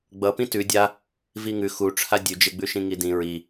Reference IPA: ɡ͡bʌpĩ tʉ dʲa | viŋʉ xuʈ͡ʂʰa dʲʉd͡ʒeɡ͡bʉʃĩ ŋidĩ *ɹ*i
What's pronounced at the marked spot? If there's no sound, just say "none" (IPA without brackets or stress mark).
ɹ